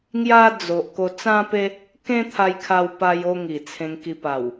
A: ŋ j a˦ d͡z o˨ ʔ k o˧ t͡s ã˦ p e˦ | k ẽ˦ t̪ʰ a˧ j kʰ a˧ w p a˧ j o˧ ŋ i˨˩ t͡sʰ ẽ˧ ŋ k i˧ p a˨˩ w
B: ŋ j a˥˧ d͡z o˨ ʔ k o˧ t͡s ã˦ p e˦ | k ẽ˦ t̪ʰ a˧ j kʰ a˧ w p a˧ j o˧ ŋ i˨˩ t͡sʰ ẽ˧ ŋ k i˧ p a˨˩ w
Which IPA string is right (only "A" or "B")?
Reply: A